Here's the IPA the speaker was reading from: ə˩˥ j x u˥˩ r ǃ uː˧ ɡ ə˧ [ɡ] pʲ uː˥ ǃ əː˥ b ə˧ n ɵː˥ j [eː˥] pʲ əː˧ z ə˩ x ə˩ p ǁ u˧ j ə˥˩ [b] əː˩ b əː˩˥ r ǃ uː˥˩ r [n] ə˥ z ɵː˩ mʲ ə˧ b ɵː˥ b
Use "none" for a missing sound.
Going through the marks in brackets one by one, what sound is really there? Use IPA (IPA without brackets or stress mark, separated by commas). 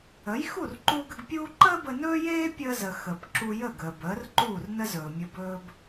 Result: ɡ, eː˥, ɡ, n